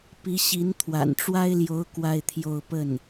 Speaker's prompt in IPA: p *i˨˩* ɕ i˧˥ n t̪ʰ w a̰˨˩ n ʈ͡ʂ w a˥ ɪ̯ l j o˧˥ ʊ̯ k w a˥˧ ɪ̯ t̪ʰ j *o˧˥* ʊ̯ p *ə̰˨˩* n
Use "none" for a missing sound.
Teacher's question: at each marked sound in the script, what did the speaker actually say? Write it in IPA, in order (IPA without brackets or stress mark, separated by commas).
i˧˥, o˥˧, ə˥˩